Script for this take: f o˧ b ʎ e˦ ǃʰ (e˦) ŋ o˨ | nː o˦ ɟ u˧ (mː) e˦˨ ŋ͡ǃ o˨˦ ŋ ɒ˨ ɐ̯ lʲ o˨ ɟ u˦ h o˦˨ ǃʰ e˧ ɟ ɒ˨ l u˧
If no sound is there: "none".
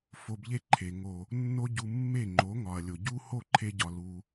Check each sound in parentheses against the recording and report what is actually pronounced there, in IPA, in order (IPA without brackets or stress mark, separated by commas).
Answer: e˨, mː